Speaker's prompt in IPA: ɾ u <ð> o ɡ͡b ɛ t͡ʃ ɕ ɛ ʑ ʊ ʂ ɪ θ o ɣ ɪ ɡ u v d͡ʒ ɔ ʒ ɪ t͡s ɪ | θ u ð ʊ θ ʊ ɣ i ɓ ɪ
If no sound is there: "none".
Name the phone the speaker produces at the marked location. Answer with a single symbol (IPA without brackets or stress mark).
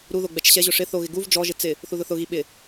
ð